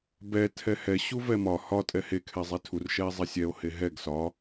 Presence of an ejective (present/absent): present